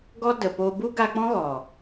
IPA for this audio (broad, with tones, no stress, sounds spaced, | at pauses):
ɡ ɔ˦ d ə˨ p o˧ b u˦ ɡ a˧ k͡p ɔ̃˦ ɣ ɔ˨